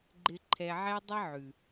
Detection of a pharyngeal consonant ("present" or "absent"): present